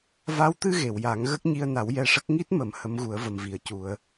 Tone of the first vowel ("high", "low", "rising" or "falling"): rising